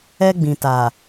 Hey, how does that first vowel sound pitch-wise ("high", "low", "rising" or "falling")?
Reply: high